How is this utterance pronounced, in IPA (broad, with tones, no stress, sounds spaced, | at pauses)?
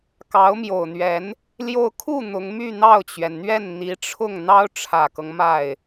k ɑ˧˥ ʊ̯ m j o˨˩ ʊ̯ n̪ ɥ ɛ˧˥ n | l j o˥˧ ʊ̯ kʰ u˥˩ n̪ ʊ˧˥ ŋ m y˥˧ n̪ ɑ˥˩ ʊ̯ t͡ɕ ɥ ɛ˩ n n̪ ɥ ɛ˥˩ n n̪ i˧˥ ʈ͡ʂʰ ʊ˥˩ ŋ n̪ ɑ˥ ʊ̯ ʈ͡ʂʰ ä˨˩ k ɤ˦ ŋ m a˥˩ ɪ̯